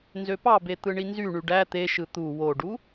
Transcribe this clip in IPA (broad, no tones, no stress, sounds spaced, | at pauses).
n z ø p ɑ b e t̪ ɯ ɳ i n z y ɳ y ɖ æ t̪ e ʃ ɯ t̪ u w o ɖ u